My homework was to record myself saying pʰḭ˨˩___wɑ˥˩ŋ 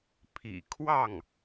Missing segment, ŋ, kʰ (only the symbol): kʰ